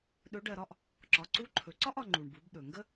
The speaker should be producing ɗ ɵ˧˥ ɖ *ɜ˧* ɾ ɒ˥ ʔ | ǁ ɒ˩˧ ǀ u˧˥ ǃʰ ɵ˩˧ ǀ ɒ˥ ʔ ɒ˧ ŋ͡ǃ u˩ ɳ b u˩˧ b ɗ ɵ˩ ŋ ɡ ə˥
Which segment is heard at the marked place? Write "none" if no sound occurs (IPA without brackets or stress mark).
ɜ˧